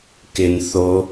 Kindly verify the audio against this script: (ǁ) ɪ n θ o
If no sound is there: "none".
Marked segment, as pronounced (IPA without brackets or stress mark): k